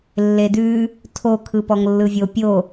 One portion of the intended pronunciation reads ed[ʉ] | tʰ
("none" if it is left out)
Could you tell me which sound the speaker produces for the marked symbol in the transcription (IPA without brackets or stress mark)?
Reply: ʉ